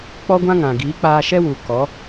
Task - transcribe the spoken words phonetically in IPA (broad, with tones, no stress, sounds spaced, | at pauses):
k͡p ɔ˦ ɡʷ ã˦ ŋ ã˨ ɡ iː˨˦ k͡p aː˧ ʃ ɛ˦ w u˨ k ɔ˨˦